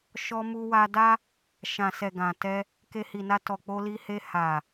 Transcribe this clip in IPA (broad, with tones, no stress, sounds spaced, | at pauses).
ʃ ɔ˧ m u˧ w a˧ d a˦ | ʃ ã˨ s ɛ˨ ɡ ã˨ t ɛ˧ | k e˧ h i˨ n a˧ t ɔ˨ k͡p o˧ l i˧ h e˧ h a˨